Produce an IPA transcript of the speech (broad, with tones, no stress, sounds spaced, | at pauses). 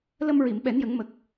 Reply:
l ə˧ m ɹ i˨˩˨ m ɓ ɛ˨˩˦ n j ə˨˩˦ ŋ m ə˨˩ k̚